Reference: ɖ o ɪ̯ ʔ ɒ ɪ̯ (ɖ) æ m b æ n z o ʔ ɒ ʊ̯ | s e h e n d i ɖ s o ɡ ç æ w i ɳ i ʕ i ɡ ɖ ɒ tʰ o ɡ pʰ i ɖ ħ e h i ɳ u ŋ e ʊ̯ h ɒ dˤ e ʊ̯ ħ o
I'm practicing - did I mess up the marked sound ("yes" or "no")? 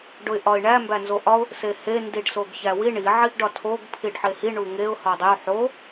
yes